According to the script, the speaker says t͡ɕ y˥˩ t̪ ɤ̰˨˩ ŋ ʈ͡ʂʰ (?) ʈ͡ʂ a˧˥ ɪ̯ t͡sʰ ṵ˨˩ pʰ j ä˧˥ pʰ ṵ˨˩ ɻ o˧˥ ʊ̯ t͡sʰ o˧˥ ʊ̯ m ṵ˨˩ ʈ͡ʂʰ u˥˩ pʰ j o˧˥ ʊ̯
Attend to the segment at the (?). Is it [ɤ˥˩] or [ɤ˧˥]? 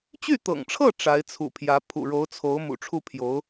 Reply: ɤ˥˩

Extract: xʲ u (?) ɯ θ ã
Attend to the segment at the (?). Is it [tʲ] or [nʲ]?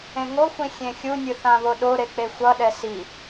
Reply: nʲ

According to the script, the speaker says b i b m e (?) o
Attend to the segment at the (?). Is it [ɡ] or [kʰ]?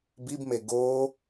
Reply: ɡ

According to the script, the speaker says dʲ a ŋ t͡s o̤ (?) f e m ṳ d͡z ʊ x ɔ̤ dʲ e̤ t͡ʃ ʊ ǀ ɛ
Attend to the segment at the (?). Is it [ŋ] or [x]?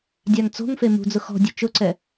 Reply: ŋ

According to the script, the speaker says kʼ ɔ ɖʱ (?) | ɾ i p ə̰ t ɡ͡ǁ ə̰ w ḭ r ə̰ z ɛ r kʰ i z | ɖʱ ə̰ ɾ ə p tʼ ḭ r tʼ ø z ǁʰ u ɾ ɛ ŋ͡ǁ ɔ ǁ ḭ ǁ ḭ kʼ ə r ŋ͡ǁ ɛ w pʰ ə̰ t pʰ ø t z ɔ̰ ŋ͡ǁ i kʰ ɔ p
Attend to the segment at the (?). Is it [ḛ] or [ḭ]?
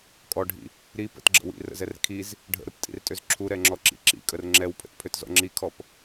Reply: ḭ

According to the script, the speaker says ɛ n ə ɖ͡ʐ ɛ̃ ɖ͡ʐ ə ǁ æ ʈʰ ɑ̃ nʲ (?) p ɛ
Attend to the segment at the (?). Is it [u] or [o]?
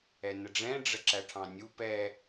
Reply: u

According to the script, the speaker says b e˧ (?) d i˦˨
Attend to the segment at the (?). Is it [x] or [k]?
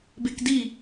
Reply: k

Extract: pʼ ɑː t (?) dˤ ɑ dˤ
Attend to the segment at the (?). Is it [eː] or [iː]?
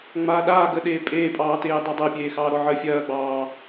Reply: eː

